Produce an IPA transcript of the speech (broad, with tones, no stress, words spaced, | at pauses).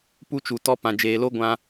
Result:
pu˧t͡ʃu˨ tɔ˦ pã˧d͡ʒeː˧ lo˦ɡʷã˧